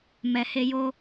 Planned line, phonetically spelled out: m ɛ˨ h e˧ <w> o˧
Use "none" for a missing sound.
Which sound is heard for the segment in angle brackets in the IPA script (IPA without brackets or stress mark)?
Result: j